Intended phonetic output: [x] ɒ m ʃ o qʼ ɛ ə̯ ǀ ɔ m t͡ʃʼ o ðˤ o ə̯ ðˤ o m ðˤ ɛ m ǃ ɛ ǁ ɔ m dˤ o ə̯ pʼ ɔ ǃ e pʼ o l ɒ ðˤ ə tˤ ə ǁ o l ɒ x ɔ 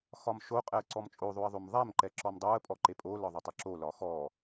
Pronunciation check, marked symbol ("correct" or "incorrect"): correct